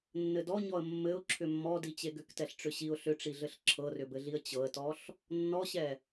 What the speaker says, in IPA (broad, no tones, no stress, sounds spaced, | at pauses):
nː ɘ d ɔ ɲ ɔ ə̯ mː ɘ ʊ̯ ǁʰ ʏ mː ɔ d i t͡ɕ e ɡ ʏ k t ɛ ɬ ʈ͡ʂ ʏ ɕ i ʊ̯ ɬ ʏ ʈ͡ʂ i ɮ ɘ ɬ ǁʰ ɤ r ʏ b ɘ ɮ i ə̯ t͡ɕ ɤ ə̯ t ɔ ɬ | nː ɔ ɕ ɛ